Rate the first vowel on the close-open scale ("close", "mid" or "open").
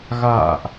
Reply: open